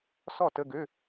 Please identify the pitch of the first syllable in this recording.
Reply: falling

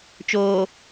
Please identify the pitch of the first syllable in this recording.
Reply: low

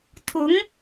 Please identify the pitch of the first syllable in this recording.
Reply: rising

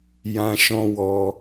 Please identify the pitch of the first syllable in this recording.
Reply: high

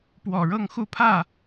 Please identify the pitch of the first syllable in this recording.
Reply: low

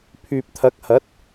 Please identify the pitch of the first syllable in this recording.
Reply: low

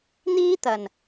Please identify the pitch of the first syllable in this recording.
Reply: high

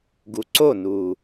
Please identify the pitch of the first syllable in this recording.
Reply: low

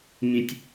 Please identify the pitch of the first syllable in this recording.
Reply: low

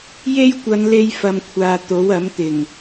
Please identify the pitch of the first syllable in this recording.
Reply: high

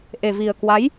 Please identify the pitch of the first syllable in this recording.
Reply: low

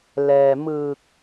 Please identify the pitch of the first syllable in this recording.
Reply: low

